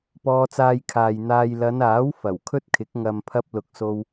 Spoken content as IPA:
p ɔː˧ t͡s aː˧ j kʰ aː˨ j n̪ aː˧ j l ɐ˨˧ n aː˨˥ w f ɐ˨˩ w kʰ ɵ˥ t̚ kʰ ɪ˨˥ k̚ ŋ ɐ˨ m pʰ ɐ˧ p̚ l ʊ˨ k̚ s o˧ w

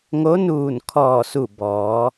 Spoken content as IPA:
ŋ o˧˥ n uː˧˩ n kʰ ɔː˧˩ s u˧˩ b ɔː˩˧

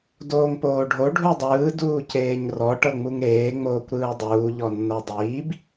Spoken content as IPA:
d oː ŋ p oː ɖʱ o ɖʱ u dˤ ɯː d uː c eː ɲ r ɔ ʈ ɤ ŋ͡m u ŋ ɾ eː ŋ͡m oː kʷ ɾ ɯː dˤ uː ʎ ɔ nː ɤ dˤ iː b

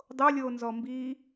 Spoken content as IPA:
dˤ o lʲ oː n z ɔ m b iː

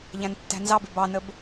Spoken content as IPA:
ʎ æ̃ n tː æ̤ n z ɑ b ɪ b ɑ n ə b

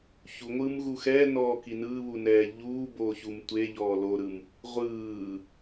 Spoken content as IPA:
ç u ŋʷ ɯː m ɣ u x ɛ n ɔː k i n ɯː β u n ɛː ʎ uː b oː ç u m tʷ e ʎ ɔː l o ɾ ɯ m | ʁʷ ɯː

